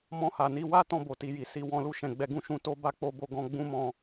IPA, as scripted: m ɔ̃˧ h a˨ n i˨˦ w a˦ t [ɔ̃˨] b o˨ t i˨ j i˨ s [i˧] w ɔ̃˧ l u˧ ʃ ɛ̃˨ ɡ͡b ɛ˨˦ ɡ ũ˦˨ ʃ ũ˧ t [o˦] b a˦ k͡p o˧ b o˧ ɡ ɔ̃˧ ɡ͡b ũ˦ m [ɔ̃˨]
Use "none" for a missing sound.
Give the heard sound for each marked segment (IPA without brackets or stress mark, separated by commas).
ɔ̃˦˨, i˨, o˦, ɔ̃˧